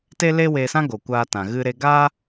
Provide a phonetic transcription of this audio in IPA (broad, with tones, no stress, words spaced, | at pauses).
te˦le˦ weː˧sã˦ ɡo˧kʷaː˦tã˧ ɣɨ˦ɾe˦ ɡaː˦